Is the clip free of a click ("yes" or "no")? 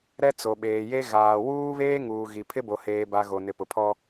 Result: yes